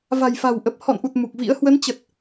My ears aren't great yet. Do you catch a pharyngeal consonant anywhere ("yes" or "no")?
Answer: no